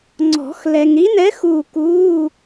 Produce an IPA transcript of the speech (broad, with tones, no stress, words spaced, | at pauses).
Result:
ŋ͡ǀɔ̤˨˩˦x lɛ˨ŋɾi˧˥nɛ˧˥ xuː˥˧ kuː˧˥˧